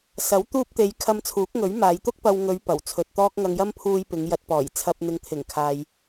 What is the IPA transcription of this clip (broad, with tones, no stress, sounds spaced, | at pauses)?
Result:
s ɐ˨˥ w t̪ uː˧ p̚ t̪ e˨˧ j kʰ ɐ˧ m t͡sʰ uː˨˥ k̚ ŋ ɵ˨˥ ɥ m aː˨˧ j t̪ ʊ˥ k̚ p ɐ˧ w ŋ ɵ˨˧ ɥ p ɐ˨˩ w t͡sʰ ɵ˨ t̚ t̪ ɔː˧ k̚ ŋ ɐ˨ ŋ j ɐ˧ m pʰ uː˧ j p ɪ˨˧ ŋ j ɐ˨ t̚ p ɔː˨˩ j t͡sʰ ɐ˨ p̚ n̪ ɪ˨ ŋ t̪ʰ ɪ˨˩ ŋ kʰ aː˨ j